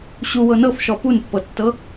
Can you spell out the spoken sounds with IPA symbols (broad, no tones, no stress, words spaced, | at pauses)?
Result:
ɕuwɤ nɤfʃɔ punpːɤtːɤ